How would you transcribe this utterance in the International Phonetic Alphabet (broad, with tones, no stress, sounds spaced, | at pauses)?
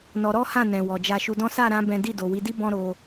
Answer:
n ɔ˧ ɾ ɔ˦ h ã˦˨ n ɛ̃˨ w ɔ˨ d͡ʒ a˧ ʃ u˧ d ɔ̃˦ s a˦˨ ɾ ã˧ b ɛ̃˦ d i˦˨ d o˨ w i˨˦ d i˦ b ɔ̃˦ ɾ o˧